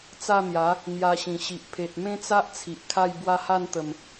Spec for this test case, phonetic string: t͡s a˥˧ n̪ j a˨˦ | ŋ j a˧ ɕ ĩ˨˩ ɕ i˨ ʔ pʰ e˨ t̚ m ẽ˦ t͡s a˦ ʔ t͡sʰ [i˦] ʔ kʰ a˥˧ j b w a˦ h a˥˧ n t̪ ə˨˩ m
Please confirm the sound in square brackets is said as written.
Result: no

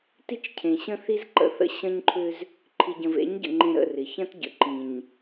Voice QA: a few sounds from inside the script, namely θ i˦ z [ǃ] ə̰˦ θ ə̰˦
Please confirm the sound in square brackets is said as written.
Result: yes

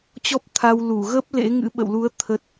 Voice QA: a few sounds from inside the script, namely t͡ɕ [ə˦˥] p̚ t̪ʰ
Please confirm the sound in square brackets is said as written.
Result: no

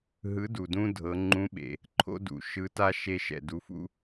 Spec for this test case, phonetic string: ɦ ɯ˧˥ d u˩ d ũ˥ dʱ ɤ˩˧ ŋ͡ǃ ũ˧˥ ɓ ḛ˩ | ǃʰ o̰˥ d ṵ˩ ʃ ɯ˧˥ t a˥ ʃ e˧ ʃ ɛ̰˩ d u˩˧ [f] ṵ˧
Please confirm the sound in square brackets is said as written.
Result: yes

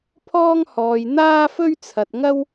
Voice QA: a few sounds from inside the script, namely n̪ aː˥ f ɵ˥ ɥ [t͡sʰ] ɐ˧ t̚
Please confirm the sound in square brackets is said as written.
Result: yes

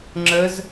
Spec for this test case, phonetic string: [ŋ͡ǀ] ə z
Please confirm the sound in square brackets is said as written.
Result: no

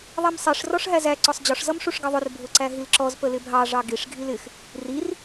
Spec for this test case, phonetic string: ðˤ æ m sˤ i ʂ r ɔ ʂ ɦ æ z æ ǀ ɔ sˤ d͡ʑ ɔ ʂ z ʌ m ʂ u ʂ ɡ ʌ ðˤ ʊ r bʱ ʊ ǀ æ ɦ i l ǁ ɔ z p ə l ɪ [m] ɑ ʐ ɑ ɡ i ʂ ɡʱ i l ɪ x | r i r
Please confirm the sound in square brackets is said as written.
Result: no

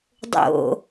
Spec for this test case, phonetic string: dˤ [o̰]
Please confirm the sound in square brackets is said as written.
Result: yes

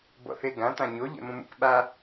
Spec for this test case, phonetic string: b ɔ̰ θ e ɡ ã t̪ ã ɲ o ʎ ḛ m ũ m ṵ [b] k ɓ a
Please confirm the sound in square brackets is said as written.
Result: no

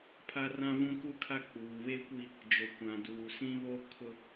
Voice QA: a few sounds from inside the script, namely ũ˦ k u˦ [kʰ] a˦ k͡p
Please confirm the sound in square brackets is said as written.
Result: yes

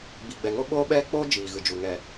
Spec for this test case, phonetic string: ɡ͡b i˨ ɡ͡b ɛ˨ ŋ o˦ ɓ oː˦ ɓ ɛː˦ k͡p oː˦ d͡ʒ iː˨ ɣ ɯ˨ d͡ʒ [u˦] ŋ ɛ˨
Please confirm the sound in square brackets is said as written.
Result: no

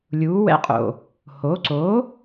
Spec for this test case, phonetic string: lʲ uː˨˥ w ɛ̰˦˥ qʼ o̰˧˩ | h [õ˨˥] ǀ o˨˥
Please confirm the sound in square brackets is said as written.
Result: no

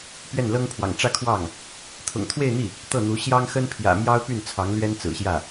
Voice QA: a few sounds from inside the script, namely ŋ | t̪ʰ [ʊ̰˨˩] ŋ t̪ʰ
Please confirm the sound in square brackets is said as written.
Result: yes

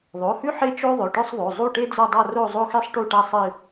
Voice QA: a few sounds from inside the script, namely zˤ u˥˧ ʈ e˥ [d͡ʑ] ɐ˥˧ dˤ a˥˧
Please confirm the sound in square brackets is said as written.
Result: no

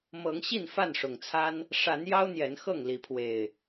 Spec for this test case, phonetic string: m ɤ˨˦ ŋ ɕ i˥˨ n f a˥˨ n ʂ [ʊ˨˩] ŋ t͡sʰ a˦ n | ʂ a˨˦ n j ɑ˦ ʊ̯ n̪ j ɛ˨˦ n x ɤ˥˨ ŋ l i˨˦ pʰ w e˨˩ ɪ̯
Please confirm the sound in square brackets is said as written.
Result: yes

